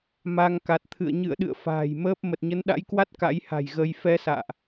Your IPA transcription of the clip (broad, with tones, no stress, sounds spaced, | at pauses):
m a˧ ŋ k a˨˩ t̚ t̪ʰ ɨ̰˧˨ ə̯ ɲ ɨ̰˧˨ ə̯ ɗ ɨ̰˧˨ ə̯ f a̤ː˨˩ j m əː˦˥ p̚ m ə˨˩ t̚ ɲ ə˨˦ n ɗ a̰˧˥ j k w a˦˥ t̚ k a̰˧˥ j h a̤˨˩ j ɣ ə˧ j f ɛ˧ s a̰ː˧˨ ʔ